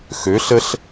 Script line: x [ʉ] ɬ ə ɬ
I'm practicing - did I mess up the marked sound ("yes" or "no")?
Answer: yes